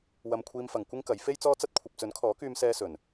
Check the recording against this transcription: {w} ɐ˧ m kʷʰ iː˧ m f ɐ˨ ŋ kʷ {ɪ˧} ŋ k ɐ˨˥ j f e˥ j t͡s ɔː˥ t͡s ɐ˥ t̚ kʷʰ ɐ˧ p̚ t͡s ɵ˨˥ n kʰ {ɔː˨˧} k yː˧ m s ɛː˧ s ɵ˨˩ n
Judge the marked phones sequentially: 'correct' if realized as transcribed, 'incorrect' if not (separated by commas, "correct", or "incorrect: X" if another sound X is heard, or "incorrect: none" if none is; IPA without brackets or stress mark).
correct, incorrect: ɪ˥, incorrect: ɔː˨˥